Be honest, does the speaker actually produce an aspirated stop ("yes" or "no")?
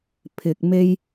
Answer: yes